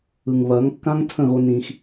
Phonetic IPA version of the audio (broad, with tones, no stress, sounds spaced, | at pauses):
ɯ˨ ŋ β ɐː˨˦ ŋ kː ã˦ ŋ tʰ ə̃˦˨ ɣ o˧ n ĩ˧ x